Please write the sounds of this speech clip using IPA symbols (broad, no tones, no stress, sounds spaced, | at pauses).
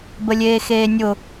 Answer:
b ə lʲ eː x eː nʲ ʊ